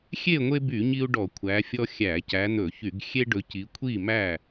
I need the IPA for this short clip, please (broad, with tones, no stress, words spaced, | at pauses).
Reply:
xʲe˥˨ŋʷe˦by˧˩˧ ɲi˦u̯ɖɔ˧˩˧ kʷʰæ˨˦fʲɔ˦ xʲæ˧˩˧cæ˨˦n̪ɵ˧˩˧çy˧˩˧ɡ xʲe˦ɖɵ˨˦ ci˨˦kʷʰi˥˨mæ˥˨